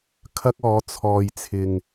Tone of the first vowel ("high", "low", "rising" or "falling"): high